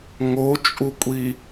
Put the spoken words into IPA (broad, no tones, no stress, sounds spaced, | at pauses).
ŋ o t͡ʃʼ u kʷʼ i